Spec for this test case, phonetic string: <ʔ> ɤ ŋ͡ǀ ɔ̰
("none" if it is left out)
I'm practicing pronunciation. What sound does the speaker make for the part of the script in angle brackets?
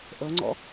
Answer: ʔ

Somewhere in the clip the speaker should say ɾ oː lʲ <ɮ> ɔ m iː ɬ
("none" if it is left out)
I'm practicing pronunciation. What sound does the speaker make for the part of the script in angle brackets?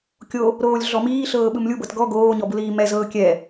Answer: ɮ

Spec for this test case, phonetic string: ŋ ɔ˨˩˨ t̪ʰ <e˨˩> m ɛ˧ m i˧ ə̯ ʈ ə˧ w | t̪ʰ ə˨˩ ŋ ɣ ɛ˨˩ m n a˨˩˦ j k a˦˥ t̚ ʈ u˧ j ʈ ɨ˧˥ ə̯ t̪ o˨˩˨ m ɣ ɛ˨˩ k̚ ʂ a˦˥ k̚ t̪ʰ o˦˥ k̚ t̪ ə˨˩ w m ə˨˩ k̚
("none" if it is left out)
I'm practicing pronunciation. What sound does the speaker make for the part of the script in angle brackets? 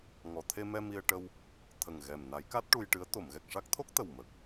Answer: e˧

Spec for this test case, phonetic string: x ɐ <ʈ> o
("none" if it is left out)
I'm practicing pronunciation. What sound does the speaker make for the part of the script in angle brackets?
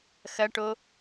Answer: ʈ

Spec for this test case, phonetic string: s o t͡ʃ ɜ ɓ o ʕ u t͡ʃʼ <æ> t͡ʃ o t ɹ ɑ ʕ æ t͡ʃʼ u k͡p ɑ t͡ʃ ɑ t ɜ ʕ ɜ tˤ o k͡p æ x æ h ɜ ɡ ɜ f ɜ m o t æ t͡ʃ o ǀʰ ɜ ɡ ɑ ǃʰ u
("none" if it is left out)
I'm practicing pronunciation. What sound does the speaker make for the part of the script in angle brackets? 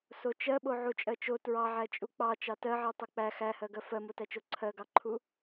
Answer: ɜ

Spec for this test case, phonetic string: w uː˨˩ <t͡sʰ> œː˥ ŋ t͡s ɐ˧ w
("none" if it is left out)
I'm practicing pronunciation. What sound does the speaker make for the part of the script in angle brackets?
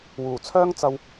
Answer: t͡sʰ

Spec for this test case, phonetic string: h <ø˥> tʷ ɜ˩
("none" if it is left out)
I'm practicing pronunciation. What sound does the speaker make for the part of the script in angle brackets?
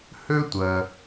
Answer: ø˥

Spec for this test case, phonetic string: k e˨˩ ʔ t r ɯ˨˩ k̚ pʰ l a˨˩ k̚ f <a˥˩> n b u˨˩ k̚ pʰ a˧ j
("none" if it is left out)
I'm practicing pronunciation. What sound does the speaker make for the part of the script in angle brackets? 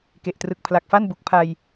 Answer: a˥˩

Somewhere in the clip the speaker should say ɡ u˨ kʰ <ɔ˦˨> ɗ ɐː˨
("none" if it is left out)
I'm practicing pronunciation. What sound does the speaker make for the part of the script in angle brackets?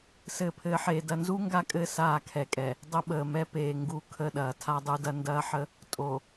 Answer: ə˦˨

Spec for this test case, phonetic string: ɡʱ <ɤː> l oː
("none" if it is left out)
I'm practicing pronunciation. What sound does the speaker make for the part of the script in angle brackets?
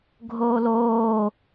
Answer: oː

